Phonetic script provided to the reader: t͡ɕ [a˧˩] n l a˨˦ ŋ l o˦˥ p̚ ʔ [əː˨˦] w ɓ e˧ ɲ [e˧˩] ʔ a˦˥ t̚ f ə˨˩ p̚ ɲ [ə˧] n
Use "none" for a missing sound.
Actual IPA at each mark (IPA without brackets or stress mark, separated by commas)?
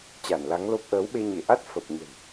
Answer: a˧˩, əː˨˦, e˧˩, ə̤˨˩